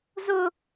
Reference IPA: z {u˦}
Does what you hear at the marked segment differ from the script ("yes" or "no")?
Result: yes